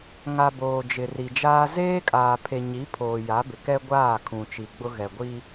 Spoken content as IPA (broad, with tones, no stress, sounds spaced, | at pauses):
ŋ a˨ b oː˨ d͡ʒ ɪ˨ r i˨ d͡ʒ aː˦ z eː˦ kʼ aː˨ pʰ e˨ ɲ i˨˦ pʰ oː˨ j a˨˦ b ɪ˨ k ɛ˦ ɡʷ aː˦˨ kʰ ũ˨ t͡ʃ i˨ ɡ͡b ʊ˦ ɣ ɛ˨ ɡʷ i˦